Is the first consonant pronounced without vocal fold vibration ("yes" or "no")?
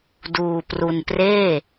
no